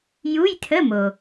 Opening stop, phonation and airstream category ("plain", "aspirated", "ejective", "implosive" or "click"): aspirated